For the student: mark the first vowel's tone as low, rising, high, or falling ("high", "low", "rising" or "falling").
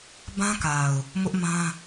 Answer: high